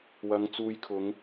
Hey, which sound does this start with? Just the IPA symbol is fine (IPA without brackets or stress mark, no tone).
w